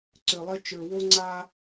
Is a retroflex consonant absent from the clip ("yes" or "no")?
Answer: yes